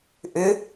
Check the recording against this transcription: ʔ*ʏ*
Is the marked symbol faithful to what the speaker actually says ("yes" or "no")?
yes